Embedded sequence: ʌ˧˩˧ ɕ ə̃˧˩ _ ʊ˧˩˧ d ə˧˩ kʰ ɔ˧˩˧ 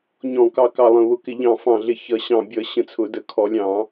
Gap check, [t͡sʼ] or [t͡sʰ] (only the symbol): t͡sʰ